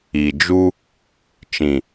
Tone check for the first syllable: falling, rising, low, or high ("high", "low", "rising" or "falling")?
low